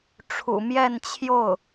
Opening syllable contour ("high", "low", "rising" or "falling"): low